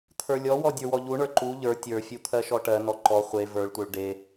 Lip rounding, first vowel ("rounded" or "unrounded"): unrounded